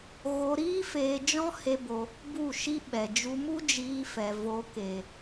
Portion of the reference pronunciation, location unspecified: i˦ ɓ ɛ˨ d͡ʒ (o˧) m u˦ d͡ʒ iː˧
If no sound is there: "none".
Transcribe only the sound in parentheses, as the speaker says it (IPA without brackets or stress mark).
u˧